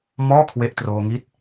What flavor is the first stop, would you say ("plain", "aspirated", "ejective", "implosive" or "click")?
aspirated